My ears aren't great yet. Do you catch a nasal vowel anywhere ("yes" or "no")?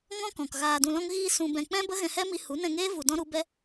yes